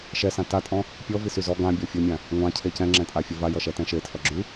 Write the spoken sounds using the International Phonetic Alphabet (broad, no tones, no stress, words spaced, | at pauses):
ʃɛsã tatʼɔ̃ | pʲɔvisy zɔ ɡãbʲɔ fʲɔmʲã | ŋʷãcʰe cɛ̃ŋ͡ǁɛ̃tʼafʲɛ vajʌʃɛtɛ̃ ʃetʰʌ ɡ͡ǁy